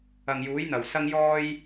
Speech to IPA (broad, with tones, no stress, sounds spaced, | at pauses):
ɐ˨ ŋ j uː˨˥ j n̪ ɐ˨˩ w s ɐ˧ ŋ j ɔː˧ j